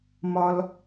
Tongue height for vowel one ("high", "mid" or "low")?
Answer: low